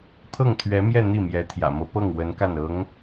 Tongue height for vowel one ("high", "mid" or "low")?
mid